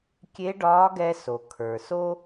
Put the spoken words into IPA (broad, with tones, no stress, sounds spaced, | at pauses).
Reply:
kʲ e˧˥ ɖ ɒː˧˥ ɡ ɛ˧ s o˩ kʰ ə˞˩ s o˥